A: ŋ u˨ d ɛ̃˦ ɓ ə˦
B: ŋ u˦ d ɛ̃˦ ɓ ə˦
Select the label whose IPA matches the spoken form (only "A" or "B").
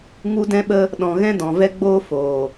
B